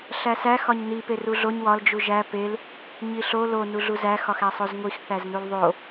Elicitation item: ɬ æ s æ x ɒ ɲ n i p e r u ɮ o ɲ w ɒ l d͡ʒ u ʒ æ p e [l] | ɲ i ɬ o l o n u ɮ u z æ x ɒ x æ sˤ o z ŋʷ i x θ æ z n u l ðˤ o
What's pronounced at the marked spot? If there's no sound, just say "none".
l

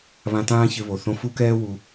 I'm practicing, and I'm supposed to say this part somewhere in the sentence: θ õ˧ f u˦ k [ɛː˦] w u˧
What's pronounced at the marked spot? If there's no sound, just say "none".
ɛː˦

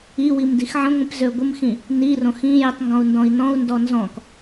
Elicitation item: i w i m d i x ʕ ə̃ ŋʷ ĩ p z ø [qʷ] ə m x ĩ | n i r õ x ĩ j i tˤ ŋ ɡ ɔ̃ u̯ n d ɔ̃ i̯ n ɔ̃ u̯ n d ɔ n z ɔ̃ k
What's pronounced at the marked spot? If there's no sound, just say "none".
ɡʷ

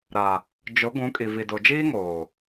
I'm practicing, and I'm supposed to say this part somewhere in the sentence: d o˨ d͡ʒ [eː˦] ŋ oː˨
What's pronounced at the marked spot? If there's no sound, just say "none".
iː˦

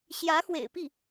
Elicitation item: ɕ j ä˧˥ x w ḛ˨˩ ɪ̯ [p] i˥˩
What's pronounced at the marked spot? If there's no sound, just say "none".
p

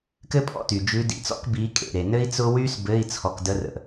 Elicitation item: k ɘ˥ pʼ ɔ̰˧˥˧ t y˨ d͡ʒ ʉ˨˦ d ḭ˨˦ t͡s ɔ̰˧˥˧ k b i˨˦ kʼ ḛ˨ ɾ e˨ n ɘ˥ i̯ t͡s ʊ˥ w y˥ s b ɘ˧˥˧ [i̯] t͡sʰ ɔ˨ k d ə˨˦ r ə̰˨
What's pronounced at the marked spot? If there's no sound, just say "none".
i̯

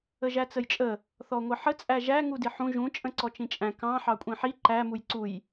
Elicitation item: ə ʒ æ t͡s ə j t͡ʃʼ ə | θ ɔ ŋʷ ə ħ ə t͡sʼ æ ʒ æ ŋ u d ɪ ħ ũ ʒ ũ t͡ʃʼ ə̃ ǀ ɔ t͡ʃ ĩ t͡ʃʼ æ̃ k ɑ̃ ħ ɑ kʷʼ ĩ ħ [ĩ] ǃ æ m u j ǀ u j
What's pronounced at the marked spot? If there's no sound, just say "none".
i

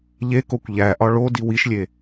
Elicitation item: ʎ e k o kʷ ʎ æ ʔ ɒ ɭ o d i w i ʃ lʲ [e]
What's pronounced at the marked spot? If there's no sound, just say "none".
e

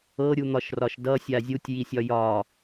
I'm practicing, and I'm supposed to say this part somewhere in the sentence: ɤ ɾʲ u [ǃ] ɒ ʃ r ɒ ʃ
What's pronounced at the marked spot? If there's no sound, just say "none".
n̪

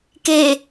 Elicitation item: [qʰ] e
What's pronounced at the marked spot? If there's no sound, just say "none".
k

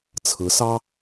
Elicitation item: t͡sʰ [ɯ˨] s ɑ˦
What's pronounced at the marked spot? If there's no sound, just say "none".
ɯ˨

